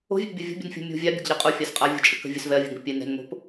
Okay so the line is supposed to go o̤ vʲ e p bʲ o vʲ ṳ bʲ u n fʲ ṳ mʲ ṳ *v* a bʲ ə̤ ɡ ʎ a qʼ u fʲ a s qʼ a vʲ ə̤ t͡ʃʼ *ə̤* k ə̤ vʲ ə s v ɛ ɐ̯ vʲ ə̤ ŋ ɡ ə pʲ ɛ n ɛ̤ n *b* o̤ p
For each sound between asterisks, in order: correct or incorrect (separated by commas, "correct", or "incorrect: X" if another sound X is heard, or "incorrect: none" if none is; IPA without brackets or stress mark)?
incorrect: vʲ, incorrect: ə, incorrect: m